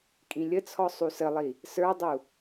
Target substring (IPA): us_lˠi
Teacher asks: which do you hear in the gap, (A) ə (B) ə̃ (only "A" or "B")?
A